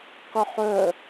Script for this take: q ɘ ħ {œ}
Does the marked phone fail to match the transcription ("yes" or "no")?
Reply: no